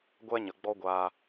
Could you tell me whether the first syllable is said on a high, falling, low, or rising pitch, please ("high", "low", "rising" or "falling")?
high